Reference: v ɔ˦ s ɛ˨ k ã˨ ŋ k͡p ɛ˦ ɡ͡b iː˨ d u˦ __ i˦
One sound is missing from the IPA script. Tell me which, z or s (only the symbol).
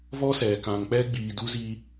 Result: z